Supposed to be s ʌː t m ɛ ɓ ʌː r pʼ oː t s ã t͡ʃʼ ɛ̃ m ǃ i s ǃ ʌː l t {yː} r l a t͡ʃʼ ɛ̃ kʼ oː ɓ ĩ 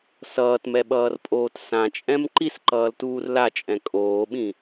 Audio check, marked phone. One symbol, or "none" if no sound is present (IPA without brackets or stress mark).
uː